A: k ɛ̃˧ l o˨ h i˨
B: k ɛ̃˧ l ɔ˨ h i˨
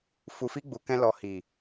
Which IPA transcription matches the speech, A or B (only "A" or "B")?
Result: B